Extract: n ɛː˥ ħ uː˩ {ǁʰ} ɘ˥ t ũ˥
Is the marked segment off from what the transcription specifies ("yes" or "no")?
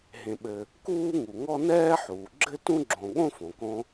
yes